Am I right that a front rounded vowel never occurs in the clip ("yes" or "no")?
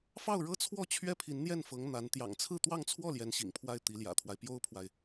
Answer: yes